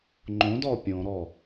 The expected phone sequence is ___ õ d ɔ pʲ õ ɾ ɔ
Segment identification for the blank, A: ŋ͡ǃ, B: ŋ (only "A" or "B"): A